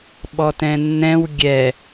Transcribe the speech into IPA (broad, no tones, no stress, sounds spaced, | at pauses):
ɓ ɔ t ɛ̃ nː ɛ̃ w ɡʲ ɛ